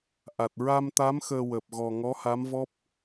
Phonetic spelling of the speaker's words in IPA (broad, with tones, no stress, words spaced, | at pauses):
ʔa˨˩t̚ ɹa˧mt̪a˧˥m xəː˧wəː˨˩p̚ ɣɔ˨˩ ŋɔ˧˥ha˧˥mvɔ˦˥p̚